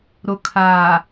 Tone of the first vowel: low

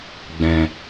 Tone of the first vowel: low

